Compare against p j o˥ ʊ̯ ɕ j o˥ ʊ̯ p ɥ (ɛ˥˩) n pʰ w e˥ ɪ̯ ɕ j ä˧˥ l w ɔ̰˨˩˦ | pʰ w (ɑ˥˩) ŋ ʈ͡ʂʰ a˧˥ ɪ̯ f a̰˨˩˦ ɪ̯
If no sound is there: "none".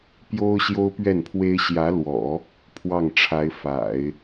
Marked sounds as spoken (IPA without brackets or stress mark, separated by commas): ɛ˥˩, ɑ˥˩